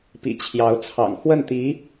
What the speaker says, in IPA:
pḭ˨˩t͡ɕʰjɑ˧˥ʊ̯t͡sʰɑ̰˨˩ŋ xwə˥˩nt̪i˧˥

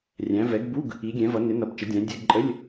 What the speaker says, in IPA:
rʲæ̃˨˦ vɛ˨˦ɡbu˧˥˧ɡ | i˨˦ɡʲɛ̃˨˦vʌ˨˦ nɪ˨˦nʌ˨˦b t͡ʃə˨˦dʲæ̃˨˦ dʲɛ˧˥˧ɡǃʼə˧˥˧lʲ

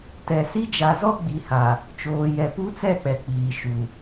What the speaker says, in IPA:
tɛ˨si˦ d͡ʒa˨zɔ˦ ɡ͡bi˨ha˨ | t͡ʃoː˨jɛ˨pu˦t͡sɛ˦˨ k͡pɛ˨k͡piː˨ ʃu˨

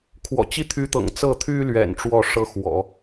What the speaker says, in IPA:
kʰwɔ̰˨˩t͡ɕi˥t̪ʰy˧˥t̪ɤ̰˨˩ŋ t͡sɤ˥˩t̪ʰy˥lɥɛ̰˨˩n ʈ͡ʂwɔ˥˩ʂɤ˥xwɔ̰˨˩˦

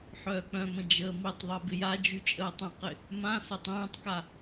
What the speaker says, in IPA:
ħœːk͡pœ̃mə̃ d͡ʒəːmitˤðˤɛ bɪjad͡ʒy t͡ʃʼəːtˤə̃qɪ | mã sœtˤɛ̃ːtˤka

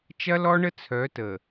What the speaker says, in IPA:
t͡ʃɐ˦lɔ˦ɳə˦ t͡sʰœ˨˦tə˨

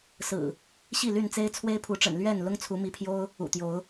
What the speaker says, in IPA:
sɹ̩˨˩ | ɕi˥˨ly˥˨nt͡se˦ɪ̯ t͡sʰwe˦ɪ̯pʰu˨˦ʈ͡ʂə̰˨˩n lɥɛ˥˨n lʊ˦ŋt͡sʰu˨˦ mi˨˦pʰjo˦ʊ̯ | ṵ˨˩t̪jo˨˦ʊ̯

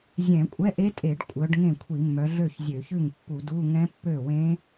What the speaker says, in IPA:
zʲɛ̃˧˩˧kʷʼɛ˧˥˧ʔe˦˥tʼe˧˩˧ɖ kʷʼœ˨˦ɖ ŋẽ˥˩kʷʰi˧˩˧mːœ˨˦ ɮø˥˩çzʲø˧˩˧çʉ˥˩ŋ pːu˧˩˧du˧˥˧ ŋɛ̃˦˥pːø˥˩wẽ˦˥

